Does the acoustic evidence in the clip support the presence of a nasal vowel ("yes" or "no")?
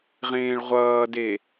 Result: yes